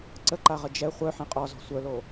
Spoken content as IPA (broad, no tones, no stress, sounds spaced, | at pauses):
ǀ ə ǃ a ʁ ə d͡ʒ ɛ χʷ œ ħ ɛ̃ qʼ ɔ z ɔ̤ sʷ œ l o